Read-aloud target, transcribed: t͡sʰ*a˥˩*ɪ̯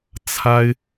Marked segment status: incorrect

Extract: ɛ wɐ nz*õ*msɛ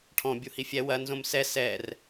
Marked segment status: correct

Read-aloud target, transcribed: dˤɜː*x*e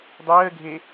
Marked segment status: incorrect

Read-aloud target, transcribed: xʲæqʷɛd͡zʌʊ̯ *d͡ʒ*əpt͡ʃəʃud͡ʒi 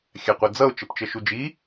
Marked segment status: incorrect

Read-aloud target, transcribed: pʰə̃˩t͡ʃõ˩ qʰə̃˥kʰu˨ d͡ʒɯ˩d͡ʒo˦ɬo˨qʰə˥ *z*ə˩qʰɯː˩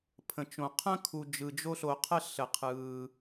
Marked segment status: incorrect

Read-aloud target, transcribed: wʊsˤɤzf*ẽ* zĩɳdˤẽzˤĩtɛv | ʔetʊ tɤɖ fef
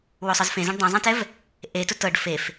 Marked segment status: correct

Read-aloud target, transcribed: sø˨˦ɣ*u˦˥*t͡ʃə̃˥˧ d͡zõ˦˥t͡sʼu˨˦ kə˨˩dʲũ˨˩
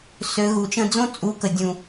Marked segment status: incorrect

